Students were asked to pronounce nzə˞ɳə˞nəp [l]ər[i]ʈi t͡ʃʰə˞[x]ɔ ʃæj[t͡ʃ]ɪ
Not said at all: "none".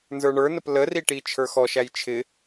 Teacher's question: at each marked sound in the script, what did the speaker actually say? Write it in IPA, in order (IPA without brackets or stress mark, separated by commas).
l, i, x, t͡ʃʰ